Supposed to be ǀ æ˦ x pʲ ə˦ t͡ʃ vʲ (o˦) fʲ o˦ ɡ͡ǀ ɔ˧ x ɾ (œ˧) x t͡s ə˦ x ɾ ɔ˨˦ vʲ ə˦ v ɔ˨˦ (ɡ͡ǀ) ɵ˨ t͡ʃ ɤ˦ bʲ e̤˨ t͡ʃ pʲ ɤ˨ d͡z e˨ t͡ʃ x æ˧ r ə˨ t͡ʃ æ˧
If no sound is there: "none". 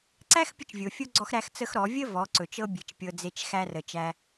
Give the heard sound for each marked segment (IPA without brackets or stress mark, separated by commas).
o˨, æ˧, ǀ